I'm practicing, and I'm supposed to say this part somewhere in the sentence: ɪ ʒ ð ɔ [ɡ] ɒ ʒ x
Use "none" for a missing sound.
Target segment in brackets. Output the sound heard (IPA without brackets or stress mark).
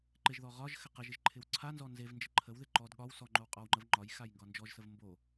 ʁ